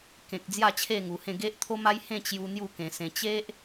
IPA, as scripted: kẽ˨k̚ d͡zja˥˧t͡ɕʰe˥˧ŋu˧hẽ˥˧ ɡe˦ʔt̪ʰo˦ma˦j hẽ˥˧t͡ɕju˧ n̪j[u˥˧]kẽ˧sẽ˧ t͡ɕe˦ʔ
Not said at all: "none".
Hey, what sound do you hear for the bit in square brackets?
u˥˧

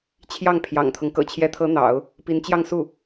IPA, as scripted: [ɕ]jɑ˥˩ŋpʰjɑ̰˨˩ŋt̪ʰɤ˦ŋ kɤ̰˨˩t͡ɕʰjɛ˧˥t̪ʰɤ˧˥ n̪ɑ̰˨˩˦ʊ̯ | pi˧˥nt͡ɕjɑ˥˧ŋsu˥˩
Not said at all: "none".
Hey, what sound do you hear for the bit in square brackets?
t͡ɕʰ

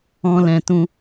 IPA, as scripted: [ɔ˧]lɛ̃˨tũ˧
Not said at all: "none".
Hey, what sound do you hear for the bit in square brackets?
ɔ̃˧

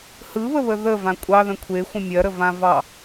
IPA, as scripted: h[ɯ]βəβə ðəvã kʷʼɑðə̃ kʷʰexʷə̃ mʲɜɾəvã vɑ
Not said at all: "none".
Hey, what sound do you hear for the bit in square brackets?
ɯ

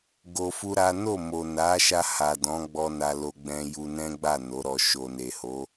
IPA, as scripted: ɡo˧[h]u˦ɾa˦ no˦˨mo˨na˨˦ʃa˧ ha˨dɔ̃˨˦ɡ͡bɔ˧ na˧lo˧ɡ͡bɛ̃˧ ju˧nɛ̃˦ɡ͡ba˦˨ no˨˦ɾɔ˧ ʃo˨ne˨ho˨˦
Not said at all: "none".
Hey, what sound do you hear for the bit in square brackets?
f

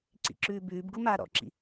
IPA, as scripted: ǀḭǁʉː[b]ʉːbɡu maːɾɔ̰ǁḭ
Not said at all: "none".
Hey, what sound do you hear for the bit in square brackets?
b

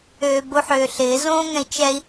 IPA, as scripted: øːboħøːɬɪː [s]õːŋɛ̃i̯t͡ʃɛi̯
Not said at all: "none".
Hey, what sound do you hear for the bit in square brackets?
z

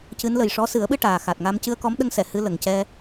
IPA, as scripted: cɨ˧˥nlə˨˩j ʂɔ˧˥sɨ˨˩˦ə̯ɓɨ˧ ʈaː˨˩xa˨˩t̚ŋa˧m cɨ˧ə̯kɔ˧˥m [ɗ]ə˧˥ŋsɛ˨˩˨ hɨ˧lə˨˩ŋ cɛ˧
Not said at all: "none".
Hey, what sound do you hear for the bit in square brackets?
ɗ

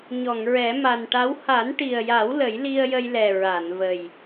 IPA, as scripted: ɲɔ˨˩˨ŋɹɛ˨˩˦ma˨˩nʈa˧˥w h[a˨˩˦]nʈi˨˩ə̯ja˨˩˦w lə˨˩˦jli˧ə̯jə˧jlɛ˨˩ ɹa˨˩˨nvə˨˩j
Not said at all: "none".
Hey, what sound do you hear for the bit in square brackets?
a˨˩˦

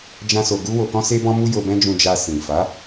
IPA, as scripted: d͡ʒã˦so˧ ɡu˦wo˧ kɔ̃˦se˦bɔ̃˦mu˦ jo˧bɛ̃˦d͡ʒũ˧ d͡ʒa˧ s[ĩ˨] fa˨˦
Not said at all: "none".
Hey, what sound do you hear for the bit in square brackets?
ĩ˨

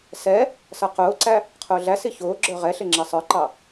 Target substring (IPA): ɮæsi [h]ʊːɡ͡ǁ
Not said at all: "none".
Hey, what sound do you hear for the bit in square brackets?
ç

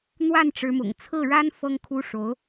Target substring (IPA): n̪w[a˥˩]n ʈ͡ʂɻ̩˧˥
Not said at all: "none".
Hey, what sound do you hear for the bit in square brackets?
a˥˩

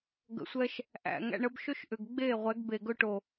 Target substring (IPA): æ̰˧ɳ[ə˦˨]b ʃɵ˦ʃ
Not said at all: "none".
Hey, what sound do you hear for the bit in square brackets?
ə˦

